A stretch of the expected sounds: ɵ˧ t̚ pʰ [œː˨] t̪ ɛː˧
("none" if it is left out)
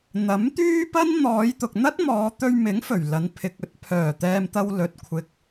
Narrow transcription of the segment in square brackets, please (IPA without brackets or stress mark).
œː˨˩